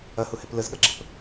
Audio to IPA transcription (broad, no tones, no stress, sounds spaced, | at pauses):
ɐ h ʊ h ɛ p l ə z ɠ ɐ ɡ͡ǁ ə p